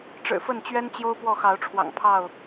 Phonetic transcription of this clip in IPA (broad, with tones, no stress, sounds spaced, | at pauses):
ʈ͡ʂ ɻ̩˨˩ f ə˥˨ n t͡ɕ ɥ ɛ˦ n t͡ɕ j o˦ ʊ̯ p w ɔ˥˨ x ɑ˨˦ ʊ̯ ʈ͡ʂʰ w ɑ̰˨˩ ŋ pʰ ɑ˥˨ ʊ̯